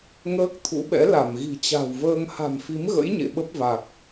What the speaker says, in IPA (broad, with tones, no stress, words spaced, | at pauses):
ŋəː˦˥k̚t̪ʰṵ˧˥ɓɛ̰˧˥ la˧˩mɣi̤˨˩t͡ɕa̤˨˩wvəː˧ŋ ha̤˨˩mfi˨˦mɣə̰˧˥j ɲḛ˧˨ɓə˦˥p̚va˨˩k̚